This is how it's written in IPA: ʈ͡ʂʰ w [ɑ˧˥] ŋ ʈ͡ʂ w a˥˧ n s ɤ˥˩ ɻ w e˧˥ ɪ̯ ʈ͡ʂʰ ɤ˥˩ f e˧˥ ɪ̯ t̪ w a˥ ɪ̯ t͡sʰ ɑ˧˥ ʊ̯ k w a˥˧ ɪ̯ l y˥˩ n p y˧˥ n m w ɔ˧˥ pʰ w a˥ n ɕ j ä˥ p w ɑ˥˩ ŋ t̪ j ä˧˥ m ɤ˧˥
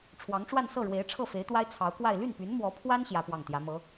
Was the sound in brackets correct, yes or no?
yes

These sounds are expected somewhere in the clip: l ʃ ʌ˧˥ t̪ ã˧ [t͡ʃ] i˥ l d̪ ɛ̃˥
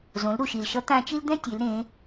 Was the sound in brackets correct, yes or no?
yes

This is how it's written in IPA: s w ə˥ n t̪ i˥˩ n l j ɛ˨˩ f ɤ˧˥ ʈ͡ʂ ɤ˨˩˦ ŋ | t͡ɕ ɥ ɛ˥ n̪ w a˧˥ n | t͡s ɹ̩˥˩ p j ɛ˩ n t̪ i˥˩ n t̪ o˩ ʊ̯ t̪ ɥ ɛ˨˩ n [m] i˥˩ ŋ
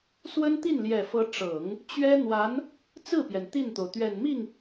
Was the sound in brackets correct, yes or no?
yes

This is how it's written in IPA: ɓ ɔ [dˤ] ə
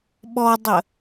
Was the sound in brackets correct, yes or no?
yes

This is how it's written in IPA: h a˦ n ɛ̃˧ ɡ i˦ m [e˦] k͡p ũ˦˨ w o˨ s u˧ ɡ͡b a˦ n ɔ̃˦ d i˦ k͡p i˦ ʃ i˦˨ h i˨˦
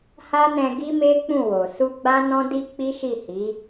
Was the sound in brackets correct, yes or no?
yes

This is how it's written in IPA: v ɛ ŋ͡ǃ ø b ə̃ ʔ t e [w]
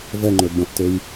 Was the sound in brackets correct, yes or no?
no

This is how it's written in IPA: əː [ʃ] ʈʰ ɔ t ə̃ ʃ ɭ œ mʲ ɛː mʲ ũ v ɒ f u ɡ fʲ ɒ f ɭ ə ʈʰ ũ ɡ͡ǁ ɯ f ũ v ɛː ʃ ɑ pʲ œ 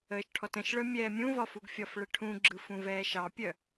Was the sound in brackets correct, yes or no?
yes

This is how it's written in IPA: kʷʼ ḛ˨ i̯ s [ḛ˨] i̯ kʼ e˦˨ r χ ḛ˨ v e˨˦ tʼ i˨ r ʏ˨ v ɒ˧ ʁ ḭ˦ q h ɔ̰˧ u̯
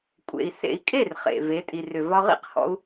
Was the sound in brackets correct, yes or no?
yes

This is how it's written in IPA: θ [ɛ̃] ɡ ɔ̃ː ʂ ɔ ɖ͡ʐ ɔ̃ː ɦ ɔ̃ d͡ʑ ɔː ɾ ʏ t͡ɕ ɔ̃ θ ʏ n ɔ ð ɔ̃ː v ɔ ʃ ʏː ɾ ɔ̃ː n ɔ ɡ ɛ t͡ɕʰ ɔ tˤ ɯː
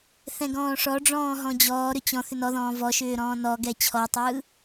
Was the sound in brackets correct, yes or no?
yes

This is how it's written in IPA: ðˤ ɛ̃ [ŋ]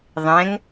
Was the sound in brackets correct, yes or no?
yes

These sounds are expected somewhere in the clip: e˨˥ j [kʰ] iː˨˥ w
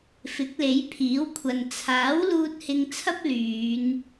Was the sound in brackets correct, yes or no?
no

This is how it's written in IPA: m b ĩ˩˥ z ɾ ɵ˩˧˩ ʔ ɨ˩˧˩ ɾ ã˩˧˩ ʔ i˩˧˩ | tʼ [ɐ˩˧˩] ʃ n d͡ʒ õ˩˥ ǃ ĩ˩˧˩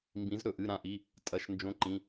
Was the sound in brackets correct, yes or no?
yes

